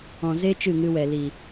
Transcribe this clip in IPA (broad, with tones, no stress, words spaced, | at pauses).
ɔ̃˨ze˦ t͡ʃɨ˦˨ŋɨ˧wɛ˨li˨